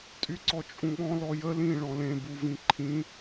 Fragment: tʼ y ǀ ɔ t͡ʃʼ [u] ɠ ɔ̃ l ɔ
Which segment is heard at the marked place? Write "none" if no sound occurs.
ũ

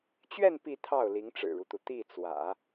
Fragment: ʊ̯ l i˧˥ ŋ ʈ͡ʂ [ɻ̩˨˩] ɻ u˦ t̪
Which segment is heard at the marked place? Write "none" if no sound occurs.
ɻ̩˨˩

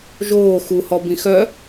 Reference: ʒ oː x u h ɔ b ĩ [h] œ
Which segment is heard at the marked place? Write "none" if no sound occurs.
x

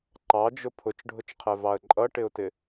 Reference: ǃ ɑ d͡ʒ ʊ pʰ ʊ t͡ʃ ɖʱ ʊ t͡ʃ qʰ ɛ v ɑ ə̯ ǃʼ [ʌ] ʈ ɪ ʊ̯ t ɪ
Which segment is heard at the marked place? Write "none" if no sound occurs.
ʌ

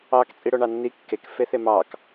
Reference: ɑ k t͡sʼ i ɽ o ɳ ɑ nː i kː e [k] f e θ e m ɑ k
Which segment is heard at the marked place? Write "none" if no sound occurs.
k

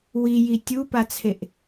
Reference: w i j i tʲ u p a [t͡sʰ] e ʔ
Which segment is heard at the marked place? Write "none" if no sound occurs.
t͡sʰ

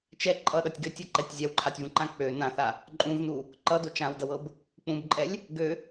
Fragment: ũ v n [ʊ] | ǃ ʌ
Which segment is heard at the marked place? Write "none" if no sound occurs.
u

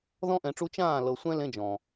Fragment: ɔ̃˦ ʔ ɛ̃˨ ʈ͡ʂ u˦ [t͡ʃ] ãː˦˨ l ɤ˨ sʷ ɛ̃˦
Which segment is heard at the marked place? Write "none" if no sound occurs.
t͡ʃ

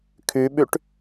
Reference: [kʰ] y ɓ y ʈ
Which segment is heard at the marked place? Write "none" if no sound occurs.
kʰ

